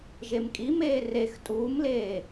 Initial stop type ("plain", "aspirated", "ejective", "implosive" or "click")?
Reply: ejective